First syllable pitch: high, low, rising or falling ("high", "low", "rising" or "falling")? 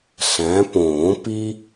rising